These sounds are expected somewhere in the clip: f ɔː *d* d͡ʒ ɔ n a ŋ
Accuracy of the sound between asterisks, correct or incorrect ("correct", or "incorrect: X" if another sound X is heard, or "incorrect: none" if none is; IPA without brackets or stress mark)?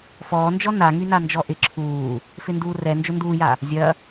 incorrect: n